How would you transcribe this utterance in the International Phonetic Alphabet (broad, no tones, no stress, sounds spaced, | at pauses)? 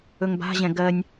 ɵ ŋ b a̤ ʑ ɛ̃ ɡ ɜ nʲ